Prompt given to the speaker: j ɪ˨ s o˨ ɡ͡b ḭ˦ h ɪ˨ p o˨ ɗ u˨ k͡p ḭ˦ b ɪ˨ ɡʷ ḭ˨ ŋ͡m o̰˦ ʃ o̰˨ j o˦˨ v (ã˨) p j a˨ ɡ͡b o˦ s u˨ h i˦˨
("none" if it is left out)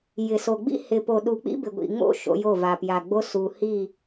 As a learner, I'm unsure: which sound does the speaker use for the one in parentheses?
a˨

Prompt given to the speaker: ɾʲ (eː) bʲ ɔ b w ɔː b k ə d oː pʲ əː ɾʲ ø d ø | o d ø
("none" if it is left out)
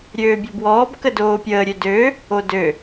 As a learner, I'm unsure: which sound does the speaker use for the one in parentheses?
øː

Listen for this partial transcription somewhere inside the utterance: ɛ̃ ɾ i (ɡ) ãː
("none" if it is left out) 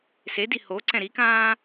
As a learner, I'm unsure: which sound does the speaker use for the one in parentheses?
k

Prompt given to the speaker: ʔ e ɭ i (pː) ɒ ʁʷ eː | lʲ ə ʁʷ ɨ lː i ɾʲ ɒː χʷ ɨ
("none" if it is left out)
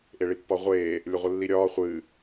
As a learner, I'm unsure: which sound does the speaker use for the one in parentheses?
pː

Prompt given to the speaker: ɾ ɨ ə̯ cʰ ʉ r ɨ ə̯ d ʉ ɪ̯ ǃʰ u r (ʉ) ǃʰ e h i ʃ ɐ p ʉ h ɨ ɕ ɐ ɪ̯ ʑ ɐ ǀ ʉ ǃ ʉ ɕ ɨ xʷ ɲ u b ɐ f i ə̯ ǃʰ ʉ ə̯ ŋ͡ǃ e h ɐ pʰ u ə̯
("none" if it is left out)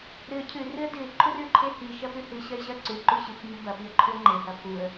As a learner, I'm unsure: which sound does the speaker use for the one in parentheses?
ʉ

